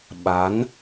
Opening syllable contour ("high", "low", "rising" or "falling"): rising